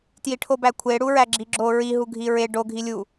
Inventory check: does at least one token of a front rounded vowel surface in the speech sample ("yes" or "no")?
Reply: no